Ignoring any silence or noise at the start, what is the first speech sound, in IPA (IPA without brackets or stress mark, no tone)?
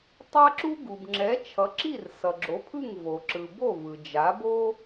tˤ